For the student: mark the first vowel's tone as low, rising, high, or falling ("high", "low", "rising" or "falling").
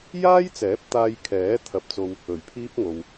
high